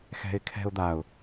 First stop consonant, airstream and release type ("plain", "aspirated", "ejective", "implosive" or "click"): aspirated